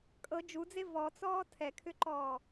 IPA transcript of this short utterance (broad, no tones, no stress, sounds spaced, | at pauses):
kʼ ɤ d͡ʒ u d͡z e v ɔ t͡s ɔː tʰ ɛ kʰ ʏ ǃ ɔː